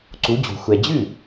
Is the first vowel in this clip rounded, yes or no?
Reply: yes